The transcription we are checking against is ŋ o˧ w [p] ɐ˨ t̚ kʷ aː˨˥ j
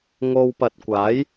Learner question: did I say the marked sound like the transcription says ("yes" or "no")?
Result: yes